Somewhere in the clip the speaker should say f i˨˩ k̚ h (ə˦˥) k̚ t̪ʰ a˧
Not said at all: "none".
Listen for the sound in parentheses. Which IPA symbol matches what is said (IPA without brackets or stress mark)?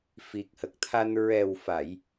ə˨˩